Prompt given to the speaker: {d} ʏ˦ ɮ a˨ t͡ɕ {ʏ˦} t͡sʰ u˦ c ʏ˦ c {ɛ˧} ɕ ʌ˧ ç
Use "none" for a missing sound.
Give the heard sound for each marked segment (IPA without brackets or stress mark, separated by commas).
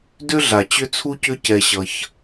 d, ʏ˦, ɛ˧